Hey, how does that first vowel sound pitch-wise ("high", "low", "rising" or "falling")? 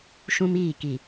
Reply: high